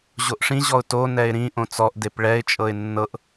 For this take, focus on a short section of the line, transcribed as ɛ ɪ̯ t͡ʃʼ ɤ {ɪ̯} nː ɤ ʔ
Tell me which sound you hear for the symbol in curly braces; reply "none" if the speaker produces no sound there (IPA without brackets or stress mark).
ɪ̯